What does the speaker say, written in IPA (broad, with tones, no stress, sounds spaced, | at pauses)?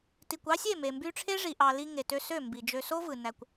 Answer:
t i˨ kʷ ɑ˦ sʲ e˦˨ m e˨ m b y˧ ʈ͡ʂʰ e˦ ʐ i˨ ʔ ɑ˧ l i˦ ŋ e˨ t ø˧ s ø˦˨ m b i˨ d͡ʒ ø˧ s o˦ v ɯ˨ n æ˧ kʷ